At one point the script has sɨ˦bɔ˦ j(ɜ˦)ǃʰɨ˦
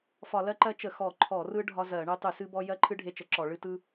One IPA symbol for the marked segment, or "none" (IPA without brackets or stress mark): ɜ˦